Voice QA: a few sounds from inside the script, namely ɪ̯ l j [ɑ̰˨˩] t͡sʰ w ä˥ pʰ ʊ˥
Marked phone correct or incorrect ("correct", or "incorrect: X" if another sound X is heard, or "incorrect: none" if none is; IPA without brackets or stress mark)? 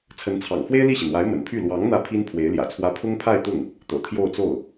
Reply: incorrect: ä̰˨˩